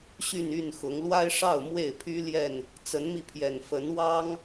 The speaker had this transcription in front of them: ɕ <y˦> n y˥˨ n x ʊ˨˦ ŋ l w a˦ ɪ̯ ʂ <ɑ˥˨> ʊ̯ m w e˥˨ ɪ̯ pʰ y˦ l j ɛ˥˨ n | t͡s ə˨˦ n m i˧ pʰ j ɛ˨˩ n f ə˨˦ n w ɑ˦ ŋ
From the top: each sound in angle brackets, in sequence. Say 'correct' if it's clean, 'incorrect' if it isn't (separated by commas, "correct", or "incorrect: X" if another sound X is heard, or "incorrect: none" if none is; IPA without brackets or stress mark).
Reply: incorrect: y˥˨, correct